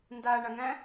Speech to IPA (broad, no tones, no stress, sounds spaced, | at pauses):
n d a ɳ a ŋ æ̃